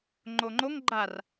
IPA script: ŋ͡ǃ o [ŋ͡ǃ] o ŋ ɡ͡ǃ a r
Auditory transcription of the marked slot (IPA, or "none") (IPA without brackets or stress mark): ŋ͡ǃ